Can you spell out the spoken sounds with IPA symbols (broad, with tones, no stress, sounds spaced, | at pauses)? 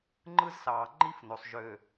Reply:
ŋ͡ǃ ɯ˦ z s ɑː˨ ŋ͡ǃ i˦ f n o˨ sˤ ʒ ø˨